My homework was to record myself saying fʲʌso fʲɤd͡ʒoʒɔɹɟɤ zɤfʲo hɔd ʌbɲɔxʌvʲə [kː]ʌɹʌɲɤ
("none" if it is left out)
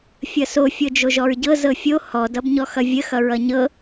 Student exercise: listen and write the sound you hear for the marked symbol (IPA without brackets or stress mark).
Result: x